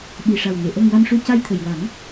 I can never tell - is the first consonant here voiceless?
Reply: no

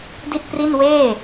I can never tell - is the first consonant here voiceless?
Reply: no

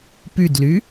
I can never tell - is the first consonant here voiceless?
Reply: yes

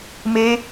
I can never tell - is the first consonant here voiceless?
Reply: no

